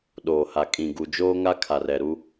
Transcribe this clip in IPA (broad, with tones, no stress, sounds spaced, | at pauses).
ɗ oː˨ h a˨ kʼ ĩ˨ ɡ u˨ d͡ʒ oː˦ ŋ a˦ kʰ a˨ r ɛ˨ ɾ u˦